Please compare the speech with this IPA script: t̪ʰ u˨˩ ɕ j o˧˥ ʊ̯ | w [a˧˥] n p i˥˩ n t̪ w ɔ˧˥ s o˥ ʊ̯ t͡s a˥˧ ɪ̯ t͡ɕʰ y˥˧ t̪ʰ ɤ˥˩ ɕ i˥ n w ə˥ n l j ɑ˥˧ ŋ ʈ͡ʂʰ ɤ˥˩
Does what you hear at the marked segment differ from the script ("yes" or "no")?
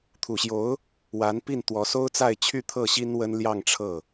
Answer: no